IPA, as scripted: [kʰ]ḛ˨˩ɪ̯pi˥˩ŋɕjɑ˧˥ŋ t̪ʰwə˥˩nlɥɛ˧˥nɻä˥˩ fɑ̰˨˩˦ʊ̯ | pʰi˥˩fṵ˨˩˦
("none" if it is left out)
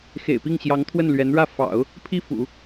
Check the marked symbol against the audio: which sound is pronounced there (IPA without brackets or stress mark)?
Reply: x